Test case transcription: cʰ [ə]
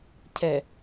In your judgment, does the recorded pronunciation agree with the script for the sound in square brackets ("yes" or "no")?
no